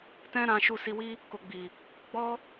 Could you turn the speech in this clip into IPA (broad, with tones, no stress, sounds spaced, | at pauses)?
t ɛ̃˦ ɾ ã˧ ʃ u˧ s i˧ w i˦ | k o˨ ɡ͡b i˨ | ɡ͡b ɔ˦